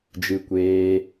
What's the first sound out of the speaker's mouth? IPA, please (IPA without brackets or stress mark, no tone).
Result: d͡ʒ